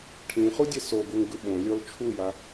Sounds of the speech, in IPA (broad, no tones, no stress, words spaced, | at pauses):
ʈʰĩχudʲɛ soɡuŋɡɯ ɓõlʲɔl t͡ʃʰuja